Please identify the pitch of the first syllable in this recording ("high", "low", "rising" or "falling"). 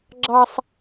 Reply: high